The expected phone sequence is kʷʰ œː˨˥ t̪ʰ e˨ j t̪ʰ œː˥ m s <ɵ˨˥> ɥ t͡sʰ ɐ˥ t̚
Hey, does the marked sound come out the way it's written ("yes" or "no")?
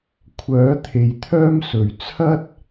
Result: no